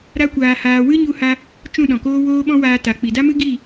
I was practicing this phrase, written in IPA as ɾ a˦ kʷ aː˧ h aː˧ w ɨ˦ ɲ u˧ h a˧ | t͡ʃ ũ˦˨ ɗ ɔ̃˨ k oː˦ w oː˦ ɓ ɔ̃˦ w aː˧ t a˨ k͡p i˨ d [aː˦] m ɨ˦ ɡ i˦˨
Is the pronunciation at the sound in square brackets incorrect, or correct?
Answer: incorrect